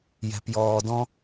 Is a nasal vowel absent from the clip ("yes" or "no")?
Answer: no